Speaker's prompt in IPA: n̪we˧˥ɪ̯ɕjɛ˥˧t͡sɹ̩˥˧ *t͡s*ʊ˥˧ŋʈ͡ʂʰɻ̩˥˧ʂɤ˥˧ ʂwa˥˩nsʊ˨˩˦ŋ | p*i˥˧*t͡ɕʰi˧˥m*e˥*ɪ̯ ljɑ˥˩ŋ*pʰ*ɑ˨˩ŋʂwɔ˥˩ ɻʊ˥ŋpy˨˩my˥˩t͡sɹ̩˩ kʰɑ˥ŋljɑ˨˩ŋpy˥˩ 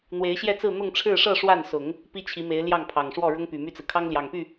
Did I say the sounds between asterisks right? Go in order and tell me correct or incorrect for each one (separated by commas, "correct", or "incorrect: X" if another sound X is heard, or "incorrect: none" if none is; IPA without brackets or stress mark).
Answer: incorrect: n̪, incorrect: i˥, incorrect: e˧˥, correct